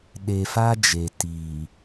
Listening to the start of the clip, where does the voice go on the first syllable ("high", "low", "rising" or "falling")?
low